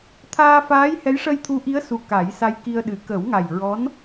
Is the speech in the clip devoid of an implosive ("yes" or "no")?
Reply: no